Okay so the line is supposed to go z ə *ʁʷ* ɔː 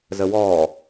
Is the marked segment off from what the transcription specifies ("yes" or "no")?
yes